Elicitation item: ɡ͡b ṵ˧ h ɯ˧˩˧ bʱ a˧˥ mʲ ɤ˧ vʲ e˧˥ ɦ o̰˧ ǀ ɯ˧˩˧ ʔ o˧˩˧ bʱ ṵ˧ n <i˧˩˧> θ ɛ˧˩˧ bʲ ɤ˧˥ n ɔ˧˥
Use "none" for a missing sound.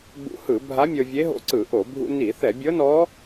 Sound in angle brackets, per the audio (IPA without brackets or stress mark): i˧˩˧